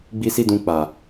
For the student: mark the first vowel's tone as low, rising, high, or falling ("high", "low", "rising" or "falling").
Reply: high